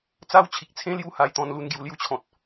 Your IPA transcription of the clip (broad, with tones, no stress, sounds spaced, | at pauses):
t͡s a˦ w t͡ɕʰ i˨ k̚ t͡sʰ ẽ˦ l j u˦ h a˧ j t̪ ɔ̃˧ n l u˥˧ n ɡ j u˧ l j u˦ t͡ɕʰ ɔ̃˨ t̚